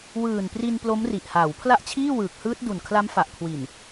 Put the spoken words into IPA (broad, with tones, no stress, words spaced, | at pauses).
wɯː˨˩npri˧n plo˦˥mri˨˩ʔhaː˩˦w pʰla˥˩ʔt͡ɕʰiː˥˩wɯː˨˩k̚hɯː˦˥t̚ du˨˩nkʰla˦˥mfa˨˩ʔkʰwi˨˩n